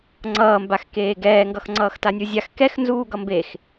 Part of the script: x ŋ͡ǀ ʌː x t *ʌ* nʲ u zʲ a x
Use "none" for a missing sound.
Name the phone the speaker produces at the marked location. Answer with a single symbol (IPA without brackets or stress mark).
a